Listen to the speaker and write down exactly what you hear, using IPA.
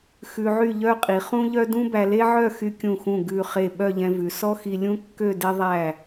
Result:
x ʉ˧ ʕ y˥˧ ʎ œ˥˧ qʼ i˩˧ χ ũ˥ ʎ œ˥ d ũ˥ b æ˧ l e˥ ʕ œ˥˧ x y˧ kʲ ũ˧˩ x ũ˧˩ ɡ ʉ˧˩ χ e˧˩ ɓ œ˥˧ ʎ ɛ̃˧ v ʉ˩˧ s ɔ˥ x i˧ lʲ ũ˥ kː ø˥˧ d e˧ ðˤ æ˧˩

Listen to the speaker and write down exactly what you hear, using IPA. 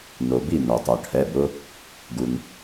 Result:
n o˩ b i˧˩ n o˩ tˤ o˩ ʈʰ ɛ˩˧˩ b ʊ˦ | ɡ u˩ n

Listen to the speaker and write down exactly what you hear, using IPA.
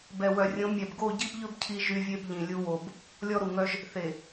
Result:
b ɛ˨ w œ˨ rʲ õ˨˦ mʲ ɛ˨ b ɡ o˦˨ ɟ i˦ b ʎ ɵ˦ b cʰ i˦ ʒ y˦ vʲ e˦ b ʎ ĩ˨ lʲ u˦ w o˨ b | lʲ ɔ˦ ɾ u˨ ŋ œ˦ ʒ | θ e˨

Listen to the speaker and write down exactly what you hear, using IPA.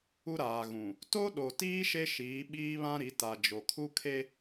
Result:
u˦ ɾ aː˨ ɣ ũ˨ | t o˦ ɗ o˨ t iː˦ ʃ e˦ ʃ iː˨˦ ɓ iː˦ β ã˦ ɾ i˨˦ t a˨ d͡ʒ o˨ kʰ u˦ kʰ e˦

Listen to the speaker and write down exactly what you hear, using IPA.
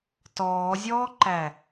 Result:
t ɔː zʲ ɔː ǃ æ

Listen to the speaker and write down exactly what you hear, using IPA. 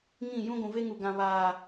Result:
ŋ ĩ˦˨ j ũ˦ ɡʷ ũ˨ v e˦ ŋ u˨ ɡ ã˨ β aː˨

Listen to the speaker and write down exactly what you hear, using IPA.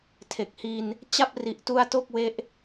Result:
tʰ e˨˩ k̚ h i˧ n | t͡ɕ a˥˩ p̚ r i˨˩ ʔ t u˧ a̯ t o˥˩ k̚ w e˦˥ ʔ

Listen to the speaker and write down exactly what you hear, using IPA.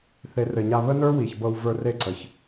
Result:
θ e˨˦ r ɘ˨ ɲ a˧ β ə˦ n ə˞˦ w i˨ ç b ɤ˧ w v ə˞˧ r e˦˨ ǀ ə˨ ç

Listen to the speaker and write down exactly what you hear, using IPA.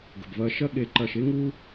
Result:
ɡ ə̤˩ b v ɐː˨ ʃ ɐ˦ ɠ e˨ ǃ ɐː˨ ʃ e˥ ŋ uː˦

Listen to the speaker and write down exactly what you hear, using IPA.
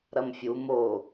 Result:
ɾ ɐ m fʲ u m o

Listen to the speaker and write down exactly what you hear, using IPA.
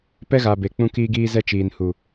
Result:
p ɛ˦ ɣ a˨ b e˨ k͡p ũ˦ k iː˦ ɡ iː˦ z ɛ˦ t͡ʃ iː˨ n h u˨

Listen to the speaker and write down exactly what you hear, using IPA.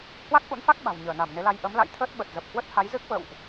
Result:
h w a˦˥ k̚ ʔ ṵ˧˥ n f a˦˥ k̚ ɓ a̤˨˩ w ɲ əː˧˩ n a˧˩ m n e˨˦ l a˧ j ʔ ə˨˦ m l a̰˧˨ j t̪ʰ əː˦˥ t̚ ɓ ə˨˩ t̚ z ə˨˩ p̚ h w ə˦˥ t̚ h a˨˦ j z ɨ˦˥ k̚ v ə̰˧˨ w ʔ

